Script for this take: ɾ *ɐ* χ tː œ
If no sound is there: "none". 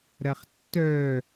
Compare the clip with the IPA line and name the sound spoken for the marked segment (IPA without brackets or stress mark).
ɐ